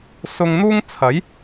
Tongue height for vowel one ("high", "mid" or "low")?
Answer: high